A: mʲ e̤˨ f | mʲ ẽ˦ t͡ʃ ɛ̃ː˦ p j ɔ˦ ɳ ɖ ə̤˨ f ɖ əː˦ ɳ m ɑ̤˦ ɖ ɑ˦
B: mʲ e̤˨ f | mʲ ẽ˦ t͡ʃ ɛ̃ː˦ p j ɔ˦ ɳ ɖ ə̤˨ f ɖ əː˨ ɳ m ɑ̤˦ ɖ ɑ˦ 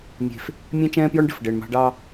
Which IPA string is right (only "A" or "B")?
B